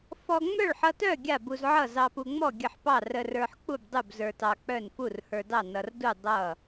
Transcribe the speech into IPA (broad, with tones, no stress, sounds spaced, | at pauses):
f ɔ˧ ŋ͡m œ˥˨ ɭ ħ ʌ˧ t œ˥˨ ɡʲ a˥˨ b u˧ z ʕ ʌ˥˨ z ɑ˧ p u˧ ŋ͡m ɔ˥˨ ɡʲ ə˥˨ ħ p ɑ˥˨ r ə˧ r ə˞˧ ħ k͡p u˥˨ b dˤ u˥˨ b z ə˞˧ t ɑ˧ k͡p œ˥˨ n f u˥˨ r h ə˞˧ d ɑ˥˨ n ʌ˧ r d u˥˨ dˤ ʌ˥˨